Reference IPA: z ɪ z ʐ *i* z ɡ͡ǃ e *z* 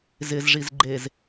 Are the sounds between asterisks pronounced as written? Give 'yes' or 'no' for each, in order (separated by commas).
yes, yes